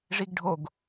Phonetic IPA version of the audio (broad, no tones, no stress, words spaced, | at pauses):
ʐiɡɖʱoɡ